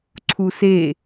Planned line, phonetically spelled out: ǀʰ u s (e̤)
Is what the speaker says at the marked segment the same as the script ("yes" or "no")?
no